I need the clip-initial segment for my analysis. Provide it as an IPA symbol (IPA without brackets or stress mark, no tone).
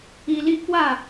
i